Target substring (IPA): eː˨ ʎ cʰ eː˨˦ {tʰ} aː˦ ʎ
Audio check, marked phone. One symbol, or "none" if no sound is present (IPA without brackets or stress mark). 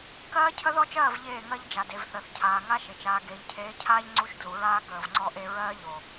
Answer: cʰ